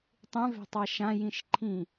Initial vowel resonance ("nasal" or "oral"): nasal